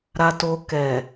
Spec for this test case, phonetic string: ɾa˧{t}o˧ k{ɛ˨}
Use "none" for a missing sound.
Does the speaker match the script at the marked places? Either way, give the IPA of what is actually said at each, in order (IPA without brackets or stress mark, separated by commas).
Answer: t, ɛ˨